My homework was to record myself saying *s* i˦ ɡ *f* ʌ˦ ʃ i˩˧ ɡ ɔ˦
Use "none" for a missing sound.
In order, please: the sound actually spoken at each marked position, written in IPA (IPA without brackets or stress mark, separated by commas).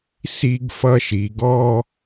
s, f